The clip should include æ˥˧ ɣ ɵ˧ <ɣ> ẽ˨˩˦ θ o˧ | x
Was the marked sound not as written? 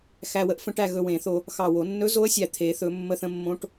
yes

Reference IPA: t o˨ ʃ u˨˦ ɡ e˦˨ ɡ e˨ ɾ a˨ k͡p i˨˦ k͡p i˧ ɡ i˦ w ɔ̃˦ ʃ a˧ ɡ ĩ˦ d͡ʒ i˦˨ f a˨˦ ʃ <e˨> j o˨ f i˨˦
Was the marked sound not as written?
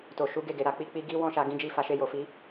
yes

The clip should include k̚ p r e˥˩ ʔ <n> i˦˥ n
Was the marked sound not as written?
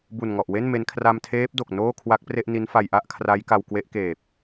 no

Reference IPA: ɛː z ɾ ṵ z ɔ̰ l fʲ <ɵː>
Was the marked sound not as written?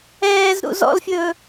no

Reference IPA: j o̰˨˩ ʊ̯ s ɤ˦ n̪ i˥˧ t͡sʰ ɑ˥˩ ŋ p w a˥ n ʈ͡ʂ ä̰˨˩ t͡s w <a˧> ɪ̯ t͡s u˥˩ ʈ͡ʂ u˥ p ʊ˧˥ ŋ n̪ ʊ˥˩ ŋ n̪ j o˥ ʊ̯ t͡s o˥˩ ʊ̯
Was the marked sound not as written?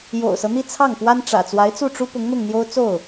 yes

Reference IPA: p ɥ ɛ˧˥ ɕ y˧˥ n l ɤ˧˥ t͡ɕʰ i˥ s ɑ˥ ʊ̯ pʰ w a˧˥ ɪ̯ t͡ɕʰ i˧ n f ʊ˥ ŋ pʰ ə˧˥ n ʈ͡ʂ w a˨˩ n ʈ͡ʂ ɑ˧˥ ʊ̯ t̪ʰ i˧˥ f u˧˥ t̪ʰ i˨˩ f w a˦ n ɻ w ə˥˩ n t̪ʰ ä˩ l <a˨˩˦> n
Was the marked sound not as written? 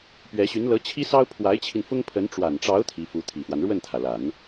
no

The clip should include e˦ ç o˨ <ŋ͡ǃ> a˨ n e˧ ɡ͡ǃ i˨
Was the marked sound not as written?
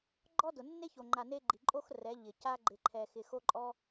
no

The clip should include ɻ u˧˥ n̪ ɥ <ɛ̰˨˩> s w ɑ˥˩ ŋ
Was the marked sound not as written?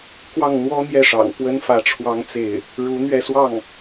yes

